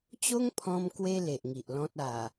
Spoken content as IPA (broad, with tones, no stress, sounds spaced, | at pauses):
t͡ɕ o˦ ŋ pʰ ɔ̃˧ m k w e˧ l e˨ ʔ ŋ i˨ ʔ l ɔ̃˦ t̚ a˨˩